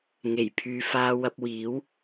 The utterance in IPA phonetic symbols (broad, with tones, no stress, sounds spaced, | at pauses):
ŋ e˨˩ j pʰ yː˨˧ f aː˧ w ɐ˧ p̚ w iː˨˥ w